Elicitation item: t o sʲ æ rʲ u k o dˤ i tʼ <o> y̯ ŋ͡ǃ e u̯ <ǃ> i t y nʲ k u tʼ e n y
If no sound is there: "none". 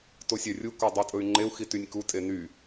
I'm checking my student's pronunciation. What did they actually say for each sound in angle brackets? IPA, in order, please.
ɵ, x

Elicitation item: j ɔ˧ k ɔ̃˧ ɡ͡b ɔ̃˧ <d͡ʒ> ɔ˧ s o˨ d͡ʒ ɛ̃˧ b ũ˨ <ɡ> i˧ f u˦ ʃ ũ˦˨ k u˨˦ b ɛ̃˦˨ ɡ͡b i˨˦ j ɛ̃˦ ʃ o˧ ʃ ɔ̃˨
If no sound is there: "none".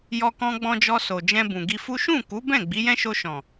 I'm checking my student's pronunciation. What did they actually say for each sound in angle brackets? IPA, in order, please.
d͡ʒ, ɡ

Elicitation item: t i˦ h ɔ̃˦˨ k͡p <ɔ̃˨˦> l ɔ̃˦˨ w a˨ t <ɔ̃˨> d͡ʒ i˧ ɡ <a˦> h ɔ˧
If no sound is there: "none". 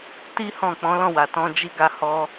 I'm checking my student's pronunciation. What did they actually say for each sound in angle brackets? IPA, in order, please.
ɔ̃˨˦, ɔ̃˧, a˧

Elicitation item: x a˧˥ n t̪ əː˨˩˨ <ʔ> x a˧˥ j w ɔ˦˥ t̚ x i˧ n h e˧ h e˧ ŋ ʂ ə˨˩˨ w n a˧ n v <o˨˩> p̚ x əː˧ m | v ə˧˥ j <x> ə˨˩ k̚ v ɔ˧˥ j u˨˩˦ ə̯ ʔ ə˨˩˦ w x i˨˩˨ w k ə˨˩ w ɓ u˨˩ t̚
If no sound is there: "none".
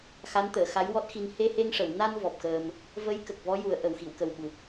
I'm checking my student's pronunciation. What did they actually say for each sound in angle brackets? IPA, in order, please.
none, ɔ˨˩, k

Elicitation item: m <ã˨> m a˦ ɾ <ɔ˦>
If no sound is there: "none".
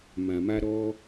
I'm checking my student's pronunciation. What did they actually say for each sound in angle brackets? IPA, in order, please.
ã˨, ɔ˦

